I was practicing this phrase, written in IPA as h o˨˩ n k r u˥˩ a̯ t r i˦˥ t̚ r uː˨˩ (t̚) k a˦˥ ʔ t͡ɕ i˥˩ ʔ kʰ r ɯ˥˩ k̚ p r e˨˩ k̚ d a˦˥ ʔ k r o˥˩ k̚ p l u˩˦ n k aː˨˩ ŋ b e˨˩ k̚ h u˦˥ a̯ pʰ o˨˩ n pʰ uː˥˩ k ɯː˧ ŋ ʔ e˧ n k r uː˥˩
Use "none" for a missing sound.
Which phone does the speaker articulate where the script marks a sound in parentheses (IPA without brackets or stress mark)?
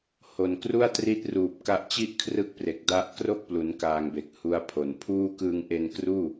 p̚